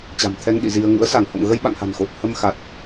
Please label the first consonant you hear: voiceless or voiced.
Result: voiceless